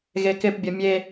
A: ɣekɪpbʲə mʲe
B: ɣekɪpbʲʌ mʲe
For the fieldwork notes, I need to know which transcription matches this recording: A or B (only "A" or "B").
B